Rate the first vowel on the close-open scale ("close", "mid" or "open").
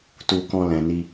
close